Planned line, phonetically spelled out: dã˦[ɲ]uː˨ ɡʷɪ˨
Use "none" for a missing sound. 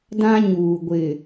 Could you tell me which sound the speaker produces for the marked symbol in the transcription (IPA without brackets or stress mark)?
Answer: ɲ